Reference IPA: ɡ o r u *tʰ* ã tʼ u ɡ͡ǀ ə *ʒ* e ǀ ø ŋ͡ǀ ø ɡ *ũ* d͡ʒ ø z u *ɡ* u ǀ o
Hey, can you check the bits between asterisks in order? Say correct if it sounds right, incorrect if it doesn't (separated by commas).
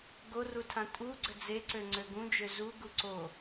correct, incorrect, correct, correct